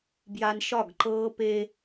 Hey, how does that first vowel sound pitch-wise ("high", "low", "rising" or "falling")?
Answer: high